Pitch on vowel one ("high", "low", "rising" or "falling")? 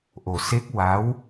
low